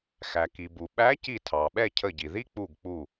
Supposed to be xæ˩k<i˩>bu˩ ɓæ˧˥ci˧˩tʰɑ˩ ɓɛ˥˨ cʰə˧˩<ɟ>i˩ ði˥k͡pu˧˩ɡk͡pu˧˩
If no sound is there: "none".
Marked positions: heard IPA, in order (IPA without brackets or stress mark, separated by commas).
i˩, ɟ